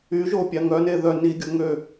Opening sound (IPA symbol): y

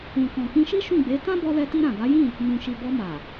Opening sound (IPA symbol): ũ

